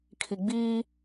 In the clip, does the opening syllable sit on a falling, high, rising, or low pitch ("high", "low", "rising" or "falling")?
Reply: low